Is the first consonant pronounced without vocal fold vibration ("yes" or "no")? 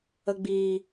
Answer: no